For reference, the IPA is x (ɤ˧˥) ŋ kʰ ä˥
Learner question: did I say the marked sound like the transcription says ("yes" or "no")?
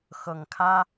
no